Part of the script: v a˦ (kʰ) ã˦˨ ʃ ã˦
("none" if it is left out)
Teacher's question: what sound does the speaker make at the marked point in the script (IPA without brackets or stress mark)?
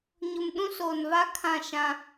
kʰ